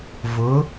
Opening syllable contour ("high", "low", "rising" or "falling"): rising